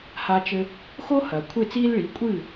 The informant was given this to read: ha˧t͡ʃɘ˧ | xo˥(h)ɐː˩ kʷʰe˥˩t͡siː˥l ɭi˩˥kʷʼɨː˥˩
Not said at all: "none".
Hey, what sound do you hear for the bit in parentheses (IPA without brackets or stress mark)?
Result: h